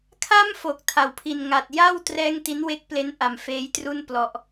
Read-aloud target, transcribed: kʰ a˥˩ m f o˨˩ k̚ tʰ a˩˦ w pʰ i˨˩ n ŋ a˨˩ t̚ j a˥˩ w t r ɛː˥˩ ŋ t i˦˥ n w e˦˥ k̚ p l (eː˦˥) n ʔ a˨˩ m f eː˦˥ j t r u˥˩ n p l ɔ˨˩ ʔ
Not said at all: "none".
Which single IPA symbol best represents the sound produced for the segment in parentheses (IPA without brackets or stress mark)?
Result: e˦˥